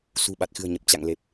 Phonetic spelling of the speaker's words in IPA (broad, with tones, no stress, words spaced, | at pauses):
sṳ˨˩ɓa˨˩t̚xɨ̤˨˩ə̯ ɲə˨˩p̚ t͡ɕa̰˧˨ŋle˨˩p̚